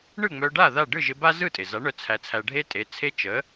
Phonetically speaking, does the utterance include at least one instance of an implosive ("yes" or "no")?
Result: no